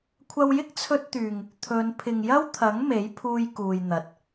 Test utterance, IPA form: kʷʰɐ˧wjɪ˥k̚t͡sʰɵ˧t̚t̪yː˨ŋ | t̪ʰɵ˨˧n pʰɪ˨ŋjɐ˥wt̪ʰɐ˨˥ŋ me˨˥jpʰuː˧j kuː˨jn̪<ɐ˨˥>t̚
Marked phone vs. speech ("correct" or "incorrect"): incorrect